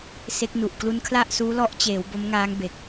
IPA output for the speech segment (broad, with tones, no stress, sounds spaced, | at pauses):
s e˦˥ k̚ n u˨˩ ʔ k l u˦˥ n kʰ l a˥˩ ʔ s uː˦˥ l ɔ˦˥ ʔ t͡ɕ eː˩˦ w b o˦˥ m ŋ aː˦˥ ŋ b e˨˩ k̚